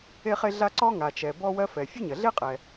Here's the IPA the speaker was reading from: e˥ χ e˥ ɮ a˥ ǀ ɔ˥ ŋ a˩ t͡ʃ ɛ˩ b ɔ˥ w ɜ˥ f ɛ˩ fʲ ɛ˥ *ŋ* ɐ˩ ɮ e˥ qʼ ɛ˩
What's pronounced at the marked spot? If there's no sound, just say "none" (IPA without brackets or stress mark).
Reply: ɲ